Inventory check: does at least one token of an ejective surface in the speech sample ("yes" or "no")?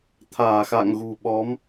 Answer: no